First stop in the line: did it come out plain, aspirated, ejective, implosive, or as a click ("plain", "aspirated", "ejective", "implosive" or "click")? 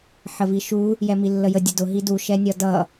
plain